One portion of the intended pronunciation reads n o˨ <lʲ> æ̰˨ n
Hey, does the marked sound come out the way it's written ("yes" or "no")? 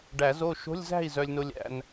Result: yes